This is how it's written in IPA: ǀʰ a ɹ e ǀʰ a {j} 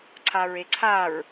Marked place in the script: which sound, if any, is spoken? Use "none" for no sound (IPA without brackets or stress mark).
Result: ɹ